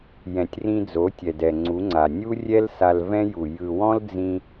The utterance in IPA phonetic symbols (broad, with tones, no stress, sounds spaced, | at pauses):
j ɛ̃˨ tʲ r ĩ˧ d͡z o˨˦ tʲ ɛ˨ d ɛ˨ ŋ͡ǀ u˨˦ ŋ͡ǀ a˨ nʲ u˦ rʲ ɛ˦ l s a˧ l v ɛ̃˦ j u˨ j ɯ˨ w ɔ̃˦ l d͡z ĩ˧